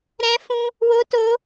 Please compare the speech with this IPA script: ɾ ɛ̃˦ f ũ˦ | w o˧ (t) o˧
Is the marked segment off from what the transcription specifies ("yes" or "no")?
no